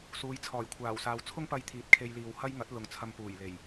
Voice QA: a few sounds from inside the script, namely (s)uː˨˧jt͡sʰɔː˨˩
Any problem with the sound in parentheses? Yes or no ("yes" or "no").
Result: no